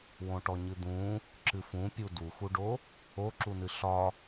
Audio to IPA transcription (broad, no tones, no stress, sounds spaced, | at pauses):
w õ ʈ ɔ ɲ ɨ d̪ ũ | ǁ ɨ f ũ pʲ u d u x u ɖ o | o ǁ u n ɨ ɬ ɒ